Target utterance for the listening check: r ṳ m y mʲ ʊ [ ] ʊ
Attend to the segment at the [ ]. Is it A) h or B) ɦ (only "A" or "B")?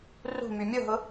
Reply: B